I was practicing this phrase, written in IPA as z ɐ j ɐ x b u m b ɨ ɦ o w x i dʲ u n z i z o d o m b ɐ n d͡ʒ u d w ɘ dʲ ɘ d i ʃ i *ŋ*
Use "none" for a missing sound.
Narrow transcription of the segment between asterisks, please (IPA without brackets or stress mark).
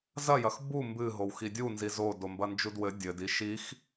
x